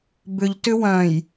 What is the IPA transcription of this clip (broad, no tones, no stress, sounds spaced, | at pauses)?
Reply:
b ʏ ʎ t ʏ w œ̃ j